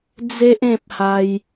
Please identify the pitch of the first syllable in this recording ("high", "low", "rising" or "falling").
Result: high